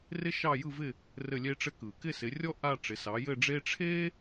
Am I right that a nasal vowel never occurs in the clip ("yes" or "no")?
yes